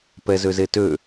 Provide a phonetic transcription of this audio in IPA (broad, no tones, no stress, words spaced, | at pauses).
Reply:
pɛzøzetø